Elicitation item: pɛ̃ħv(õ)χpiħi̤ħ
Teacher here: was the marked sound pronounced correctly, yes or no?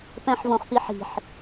yes